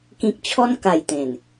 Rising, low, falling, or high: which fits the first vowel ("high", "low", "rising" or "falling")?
low